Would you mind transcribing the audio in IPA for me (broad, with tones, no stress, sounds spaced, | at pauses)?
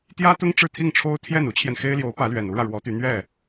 t̪ j ä˥ t̪ ʊ˥ ŋ ʈ͡ʂ ɻ̩˥˧ t̪ʰ i˥˩ ŋ ʈ͡ʂʰ o˥ ʊ̯ t̪ʰ j ɛ˥˩ n u˥ t͡ɕʰ j ɛ˨ n x e˥ ɪ̯ l j o˧˥ ʊ̯ p ä˧˥ l ɥ ɛ˨˩ n u˥ ɻ ä˨ ɻ w ɔ˧˥ t̪ y˧˥ n̪ ɥ ɛ˥˩